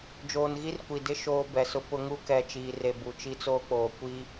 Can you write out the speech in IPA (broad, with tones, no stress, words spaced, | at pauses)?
d͡ʒoː˨nɣi˦rkʷi˨dɪ˦˨ ʃoː˦bɛ˨sʊ˦ pʊ˦ ŋu˦˨kɛ˨t͡ʃiː˨re˨ bu˨t͡ʃi˦t͡soː˦k͡poː˨ kʷi˦